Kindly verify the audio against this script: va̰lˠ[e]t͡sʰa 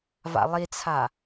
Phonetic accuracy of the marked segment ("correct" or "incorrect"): incorrect